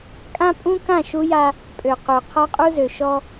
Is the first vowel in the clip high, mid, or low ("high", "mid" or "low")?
low